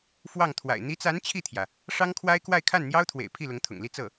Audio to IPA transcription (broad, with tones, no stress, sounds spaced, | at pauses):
f w ɑ˥˩ ŋ t̪ʰ w a̰˨˩ ɪ̯ n̪ i˧˥ t͡s a˧˥ n t͡ɕʰ i˥˩ t̪ʰ j ä˩ | ʂ ɑ˥ ŋ kʰ w a˥ ɪ̯ k w a˥˧ ɪ̯ kʰ a˥˩ n n̪ j ɑ˥ ʊ̯ t̪ʰ w ḛ˨˩ ɪ̯ pʰ i˥˩ l ʊ˧˥ ŋ t̪ʰ ʊ̰˨˩ ŋ l i˥˧ t͡s ɤ˥˩